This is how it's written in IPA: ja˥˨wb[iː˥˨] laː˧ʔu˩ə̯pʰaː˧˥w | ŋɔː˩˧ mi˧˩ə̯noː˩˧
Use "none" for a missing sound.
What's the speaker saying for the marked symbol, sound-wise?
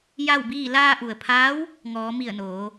iː˥˨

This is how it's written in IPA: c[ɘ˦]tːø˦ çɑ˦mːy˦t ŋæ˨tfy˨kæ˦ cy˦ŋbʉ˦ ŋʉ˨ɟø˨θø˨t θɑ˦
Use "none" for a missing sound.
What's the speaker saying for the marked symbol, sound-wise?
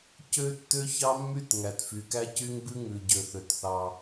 ø˦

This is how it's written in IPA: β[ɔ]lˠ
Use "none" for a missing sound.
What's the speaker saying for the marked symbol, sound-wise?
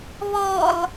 ɔ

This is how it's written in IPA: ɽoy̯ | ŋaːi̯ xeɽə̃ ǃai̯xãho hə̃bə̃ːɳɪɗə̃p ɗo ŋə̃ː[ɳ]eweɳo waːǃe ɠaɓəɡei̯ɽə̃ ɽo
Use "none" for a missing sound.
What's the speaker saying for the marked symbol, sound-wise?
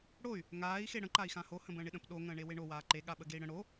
ɳ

